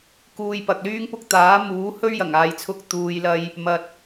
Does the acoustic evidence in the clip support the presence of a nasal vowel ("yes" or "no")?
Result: no